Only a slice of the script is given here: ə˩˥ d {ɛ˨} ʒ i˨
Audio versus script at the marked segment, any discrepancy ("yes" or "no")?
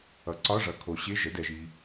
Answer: no